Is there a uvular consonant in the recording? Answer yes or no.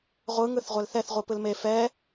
yes